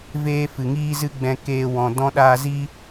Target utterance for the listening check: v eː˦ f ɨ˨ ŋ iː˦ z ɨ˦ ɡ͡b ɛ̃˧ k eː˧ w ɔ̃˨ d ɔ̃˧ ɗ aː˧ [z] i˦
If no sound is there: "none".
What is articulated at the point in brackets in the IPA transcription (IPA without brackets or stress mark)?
z